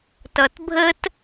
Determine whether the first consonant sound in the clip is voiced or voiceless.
voiceless